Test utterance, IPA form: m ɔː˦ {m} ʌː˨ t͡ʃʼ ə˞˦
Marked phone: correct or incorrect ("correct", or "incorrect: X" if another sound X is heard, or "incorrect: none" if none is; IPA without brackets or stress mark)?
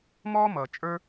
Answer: correct